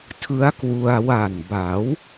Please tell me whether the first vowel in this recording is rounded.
no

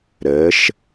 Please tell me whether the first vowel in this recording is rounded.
no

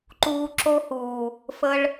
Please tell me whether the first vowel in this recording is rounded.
yes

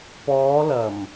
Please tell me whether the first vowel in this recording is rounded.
yes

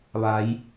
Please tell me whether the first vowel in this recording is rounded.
no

